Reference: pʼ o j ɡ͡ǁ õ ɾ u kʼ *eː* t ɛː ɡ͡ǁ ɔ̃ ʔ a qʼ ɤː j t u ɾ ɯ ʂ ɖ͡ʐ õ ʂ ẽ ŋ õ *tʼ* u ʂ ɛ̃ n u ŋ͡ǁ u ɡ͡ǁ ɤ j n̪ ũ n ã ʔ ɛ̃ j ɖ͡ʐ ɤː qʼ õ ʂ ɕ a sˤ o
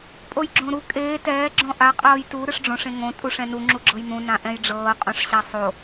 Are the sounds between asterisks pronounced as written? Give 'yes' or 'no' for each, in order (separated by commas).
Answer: yes, yes